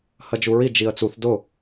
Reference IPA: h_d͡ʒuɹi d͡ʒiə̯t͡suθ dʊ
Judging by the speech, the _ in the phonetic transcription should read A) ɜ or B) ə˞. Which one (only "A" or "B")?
A